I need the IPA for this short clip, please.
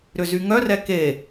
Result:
ɾʏzyŋœrɛ ke

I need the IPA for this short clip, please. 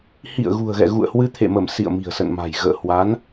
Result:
hḭ˧˨ə̯ ɣṳ˨˩ə̯ɣɛ̰˧˨ɣṵ˧˨ə̯ hwɨ˧t̪ʰḛ˧˨mə˧˩m sḭ˧˨ə̯ mi̤˨˩ə̯sə̰˧˨nma̤˨˩j ɣə̰ː˧˨hwa˨˦n

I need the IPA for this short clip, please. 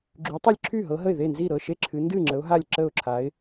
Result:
ɡ͡ǁy˨˦tˤɛ˥˩lʲǁʰy˥˩ɦɤ˨˦ ɦə˥˩ɪ̯ ðe˥˩nzi˥˩ ɾɤ˥˩ʃe˥˩ǁʰɨ˨˦ ndɨ˥˩ ŋ͡ǁə˨˦ʊ̯ɦa˥˩lʲ ǁə˥˩ʊ̯ǁʰa˨˦ɪ̯

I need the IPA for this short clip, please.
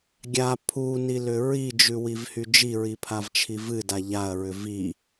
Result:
ɡʲa pʰunilʏ ɹid͡ʒʉwivhy d͡ʒiɹipʰavt͡ʃʰi vɨda ʎaɐ̯ɹʏ vi

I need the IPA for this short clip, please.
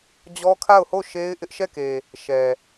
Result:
d͡ʑɔ˦kʰa˦˨ʊ̯ho˦˨ ʃe˦ɪ̯ ʔɪ˦ʔʃɛ˦˨ke˨ | ʃɛ˨

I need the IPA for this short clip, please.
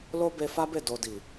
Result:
lo˦be˧fa˦be˦˨ do˨di˨

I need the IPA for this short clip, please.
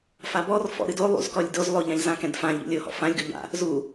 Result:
fabɔrfɔ̰ ɾɨdo lˠṵzkɔlʲdoz lˠoʎãʎ zãkɛ̃dfã ʎṵlʲohɔ̰ fãlʲɡu ʎa̰ | zu

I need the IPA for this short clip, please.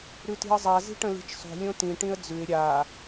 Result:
ɾʉti̤ə̯zˤa zi̤ʈə̃li̤t͡ʃsˤo̤ lʲõtĩ ʈĩə̯d͡zʉɪ̯ ɾʲa

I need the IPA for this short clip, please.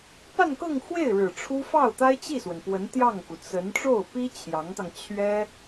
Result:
pa˥˧nkɤ˥˧ŋxwe˥˩ɪ̯ ɻɻ̩˨˩ʈ͡ʂʰu˥ fɑ˥˩ʊ̯t̪a˥ɪ̯t͡ɕi˥˩swə˩n pwə˧˥nt̪jɑ˥˩ŋku˩ t͡sə˧˥n ʈ͡ʂo˥˩ʊ̯pi˥ t͡ɕʰjɑ˧˥ŋt̪ɑ˧ŋ t͡ɕʰɥɛ˥

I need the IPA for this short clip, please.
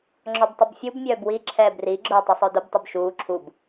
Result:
ŋ͡ǁɔbtˤʊbfʲub mʲœːbwi ǁʰɛːbri ɡ͡ǁʊːtˤəsˤœdʊb tˤɯbʃuː ǁʰub

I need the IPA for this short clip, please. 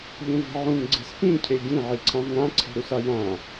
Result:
ʎũve̤ʕũŋ ɡ͡ǀe̤spĩ cʰeɟĩ ʕiǀʰãvŋã ǀʰe̤ɾusajã

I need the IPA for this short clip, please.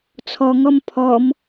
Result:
t͡sʰɔŋɔm pʰɔm

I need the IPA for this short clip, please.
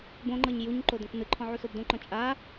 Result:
bõŋ͡ǃɤɲ juɲ ǃodɔ̃knɯǃʰɔ̃ ʕusobdõǃɔ̃ t͡ʃʼa

